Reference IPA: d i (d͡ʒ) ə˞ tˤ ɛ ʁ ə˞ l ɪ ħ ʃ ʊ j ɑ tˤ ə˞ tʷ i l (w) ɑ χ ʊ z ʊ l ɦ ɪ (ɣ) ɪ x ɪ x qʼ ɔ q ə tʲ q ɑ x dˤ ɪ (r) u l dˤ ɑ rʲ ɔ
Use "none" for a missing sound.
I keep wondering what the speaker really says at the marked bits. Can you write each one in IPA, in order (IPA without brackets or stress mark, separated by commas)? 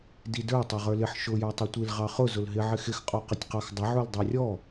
d, ʁ, ʕ, ʕ